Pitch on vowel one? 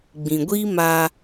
low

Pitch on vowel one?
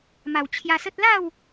low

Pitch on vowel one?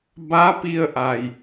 rising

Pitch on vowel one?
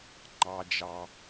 high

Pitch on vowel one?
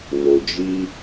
low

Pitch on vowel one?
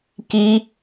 high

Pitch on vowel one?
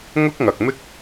high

